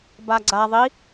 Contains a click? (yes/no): yes